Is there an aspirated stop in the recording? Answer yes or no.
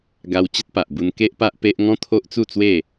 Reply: yes